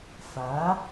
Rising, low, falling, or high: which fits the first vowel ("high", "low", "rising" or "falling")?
rising